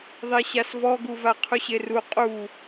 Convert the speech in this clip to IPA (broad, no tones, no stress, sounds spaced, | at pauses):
ðˤ e ɕ a s v ɔ ɡ u v a qʰ u ɕ e r u qʼ u